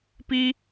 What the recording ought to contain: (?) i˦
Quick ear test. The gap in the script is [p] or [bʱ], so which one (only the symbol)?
p